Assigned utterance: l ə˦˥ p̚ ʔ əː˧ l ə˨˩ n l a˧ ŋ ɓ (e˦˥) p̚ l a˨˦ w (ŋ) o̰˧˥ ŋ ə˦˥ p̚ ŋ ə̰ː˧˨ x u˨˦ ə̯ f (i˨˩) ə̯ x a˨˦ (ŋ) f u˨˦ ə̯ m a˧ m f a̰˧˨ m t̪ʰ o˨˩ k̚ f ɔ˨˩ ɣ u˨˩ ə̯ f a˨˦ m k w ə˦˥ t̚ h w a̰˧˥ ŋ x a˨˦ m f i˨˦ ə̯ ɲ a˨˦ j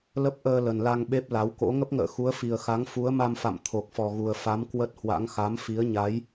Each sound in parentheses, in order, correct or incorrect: correct, incorrect, correct, correct

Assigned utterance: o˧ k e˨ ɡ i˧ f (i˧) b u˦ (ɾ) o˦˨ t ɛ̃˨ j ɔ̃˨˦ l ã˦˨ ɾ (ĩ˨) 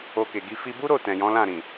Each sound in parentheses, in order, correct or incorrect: correct, correct, correct

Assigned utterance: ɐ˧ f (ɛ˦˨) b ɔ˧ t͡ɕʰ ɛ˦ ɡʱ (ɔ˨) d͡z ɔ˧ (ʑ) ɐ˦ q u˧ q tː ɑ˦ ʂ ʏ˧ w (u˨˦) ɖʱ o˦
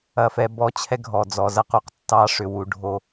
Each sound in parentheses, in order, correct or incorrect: incorrect, correct, incorrect, correct

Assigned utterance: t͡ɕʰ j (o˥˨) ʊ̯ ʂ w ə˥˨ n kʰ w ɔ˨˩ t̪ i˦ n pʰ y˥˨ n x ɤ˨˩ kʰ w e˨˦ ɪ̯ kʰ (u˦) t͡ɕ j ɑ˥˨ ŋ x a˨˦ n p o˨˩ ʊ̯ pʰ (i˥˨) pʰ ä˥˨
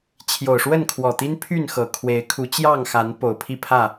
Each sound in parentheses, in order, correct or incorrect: incorrect, incorrect, correct

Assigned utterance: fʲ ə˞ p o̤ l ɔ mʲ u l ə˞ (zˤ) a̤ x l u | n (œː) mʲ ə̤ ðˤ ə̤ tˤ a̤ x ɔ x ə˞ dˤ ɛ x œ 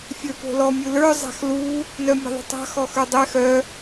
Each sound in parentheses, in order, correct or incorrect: correct, incorrect

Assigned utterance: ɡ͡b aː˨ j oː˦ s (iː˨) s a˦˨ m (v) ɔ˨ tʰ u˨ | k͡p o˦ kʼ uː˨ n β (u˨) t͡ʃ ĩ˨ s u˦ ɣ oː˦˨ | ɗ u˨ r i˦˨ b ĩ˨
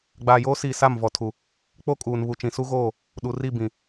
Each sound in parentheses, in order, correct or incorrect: correct, correct, correct

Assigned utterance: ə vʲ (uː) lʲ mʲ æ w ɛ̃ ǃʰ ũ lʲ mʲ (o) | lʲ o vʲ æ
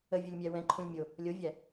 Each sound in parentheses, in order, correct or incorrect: incorrect, correct

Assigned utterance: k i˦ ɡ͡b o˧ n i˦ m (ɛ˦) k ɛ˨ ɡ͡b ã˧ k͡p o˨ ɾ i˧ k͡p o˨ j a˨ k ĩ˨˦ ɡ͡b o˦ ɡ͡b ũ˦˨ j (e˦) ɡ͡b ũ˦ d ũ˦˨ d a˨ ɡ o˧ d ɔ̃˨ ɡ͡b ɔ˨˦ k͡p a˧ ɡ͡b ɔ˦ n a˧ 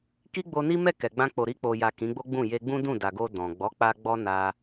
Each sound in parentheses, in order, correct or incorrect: incorrect, incorrect

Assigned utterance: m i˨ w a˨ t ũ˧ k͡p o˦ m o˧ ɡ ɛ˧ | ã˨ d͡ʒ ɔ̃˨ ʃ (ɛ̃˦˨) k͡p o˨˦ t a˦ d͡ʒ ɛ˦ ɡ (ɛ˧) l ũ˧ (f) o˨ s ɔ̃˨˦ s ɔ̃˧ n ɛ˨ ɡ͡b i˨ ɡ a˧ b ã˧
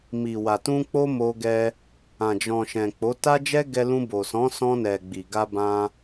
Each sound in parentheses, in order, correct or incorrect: incorrect, correct, incorrect

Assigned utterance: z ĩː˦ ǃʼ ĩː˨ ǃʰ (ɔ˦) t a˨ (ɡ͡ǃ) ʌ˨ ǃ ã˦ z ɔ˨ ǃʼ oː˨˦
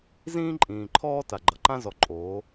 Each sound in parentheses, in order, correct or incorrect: incorrect, correct

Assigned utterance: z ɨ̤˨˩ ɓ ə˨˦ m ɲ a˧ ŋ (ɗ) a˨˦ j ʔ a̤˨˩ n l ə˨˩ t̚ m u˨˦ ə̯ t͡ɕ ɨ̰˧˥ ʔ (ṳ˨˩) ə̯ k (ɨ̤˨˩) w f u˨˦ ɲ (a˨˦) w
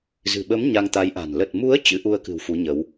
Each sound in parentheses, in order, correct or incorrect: incorrect, incorrect, correct, incorrect

